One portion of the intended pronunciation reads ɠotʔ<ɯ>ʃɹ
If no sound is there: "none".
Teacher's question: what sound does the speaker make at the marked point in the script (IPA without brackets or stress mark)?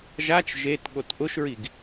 ʊ